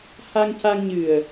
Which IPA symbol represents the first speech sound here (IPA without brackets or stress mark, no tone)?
h